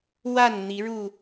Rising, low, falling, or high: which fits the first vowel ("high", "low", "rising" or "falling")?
falling